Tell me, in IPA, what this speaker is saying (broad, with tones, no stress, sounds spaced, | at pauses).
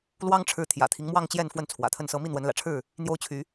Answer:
l w ɑ˦ ŋ ʈ͡ʂʰ ɻ̩˨˦ t̪ʰ j ä̰˨˩ t̪ʰ i˦ ŋ m w ɑ˥˨ ŋ t͡ɕ j ɛ˥˨ n f w ə˥˨ n t͡sʰ w ä̰˨˩ t̪ʰ ə˥˨ n s ɤ˦ m i˥˨ n̪ w ə˨˦ n l ä̰˨˩ ʈ͡ʂʰ ɻ̩˥˨ | n̪ j o˦ ʊ̯ t͡ɕʰ y˨˦